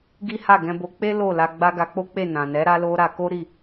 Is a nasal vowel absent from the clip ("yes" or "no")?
no